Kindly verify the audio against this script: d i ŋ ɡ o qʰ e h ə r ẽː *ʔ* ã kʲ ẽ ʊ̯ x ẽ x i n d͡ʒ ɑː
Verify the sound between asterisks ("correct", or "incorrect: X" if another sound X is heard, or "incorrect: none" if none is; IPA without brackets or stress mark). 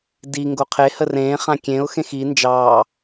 incorrect: χ